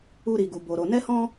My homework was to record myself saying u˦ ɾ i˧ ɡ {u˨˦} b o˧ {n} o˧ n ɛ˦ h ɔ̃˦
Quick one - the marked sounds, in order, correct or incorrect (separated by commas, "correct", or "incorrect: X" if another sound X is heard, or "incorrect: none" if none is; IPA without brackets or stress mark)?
incorrect: u˧, incorrect: ɾ